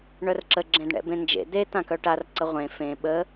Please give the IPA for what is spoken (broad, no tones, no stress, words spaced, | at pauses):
ɳœrǁə ɡ͡ǁẽdɳɛ̰bẽnd͡ʒḛ d̪e t̪ãkœʈar ǀəʁʷẽ fẽ ɓə